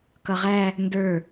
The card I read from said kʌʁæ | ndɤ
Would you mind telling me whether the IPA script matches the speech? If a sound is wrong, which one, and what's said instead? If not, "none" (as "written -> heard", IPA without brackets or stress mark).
ɤ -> ə˞